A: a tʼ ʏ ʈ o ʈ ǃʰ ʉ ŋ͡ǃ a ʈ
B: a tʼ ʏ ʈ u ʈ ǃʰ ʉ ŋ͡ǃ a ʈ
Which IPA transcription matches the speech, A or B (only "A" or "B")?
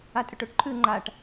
A